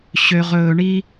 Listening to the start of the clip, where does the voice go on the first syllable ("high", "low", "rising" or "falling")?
low